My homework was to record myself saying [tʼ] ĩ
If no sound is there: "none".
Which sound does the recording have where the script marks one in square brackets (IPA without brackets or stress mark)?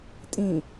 tʼ